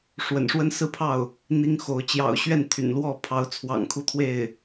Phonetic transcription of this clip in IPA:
ʂwə̰˨˩nʂwə˥nsɹ̩˥pʰɑ˥˩ʊ̯ | n̪i˥ŋxo˧˥ʊ̯ t͡ɕjɑ̰˨˩ʊ̯ɕɥɛ˥˩n t̪ʰy̰˨˩nlwɔ˥˩pʰɑ˧˥ʊ̯t͡sʰwɑ̰˨˩ŋ kʰu˥˧t̪ʰwe˥˩ɪ̯

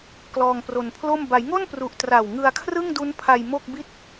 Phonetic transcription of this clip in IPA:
klɔː˧ŋpro˧npʰlo˥˩m ba˩˦jŋo˥˩npru˨˩ʔ tra˨˩w ŋɯ˧a̯kʰrɯ˥˩ŋdu˦˥npʰa˧j mo˥˩k̚bi˥˩t̚

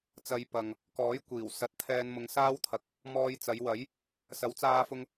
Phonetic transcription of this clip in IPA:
t͡sɐ˧jpɐ˨ŋ | kɔː˨˥j kʷiː˨˩wsɐ˨˥t̚t̪ʰɛː˧n mʊ˨˧ŋsaː˥wt̪ʰɐ˨k̚ | mɔː˧jt͡sɐ˨˧jwɐ˨˥j | sɐ˨˥wt͡saː˧fʊ˧ŋ

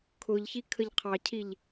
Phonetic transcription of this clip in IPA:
kʰʊʎçi kʰəʎqʰɑcʰiʎ

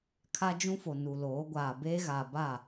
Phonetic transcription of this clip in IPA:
kʰa˦d͡ʒũ˦fo˨ nu˨loː˨˦ɡʷaː˨ be˦ɣa˨ba˦˨

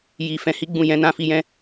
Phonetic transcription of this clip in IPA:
ji˧ fɛ̃˧hi˦ɡ͡bũ˦˨ jɛ̃˨˦nã˧fi˧jɛ̃˦

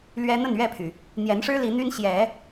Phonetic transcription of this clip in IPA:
lɥɛ˦ n̪ə˥˨nɥɛ˥˨pʰy˩ | n̪jɛ˨˦nʂɻ̩˦ li˨˦n̪y˦n ɕjɛ˨˦

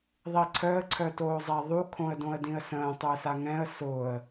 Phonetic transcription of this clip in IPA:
ðˤiǀʰœə̯ ǀʰœtoːzˤɛðˤu kʰõə̯dõə̯dĩə̯sə̃ː tˤʏə̯saŋɛ̃ə̯ sʊːə̯

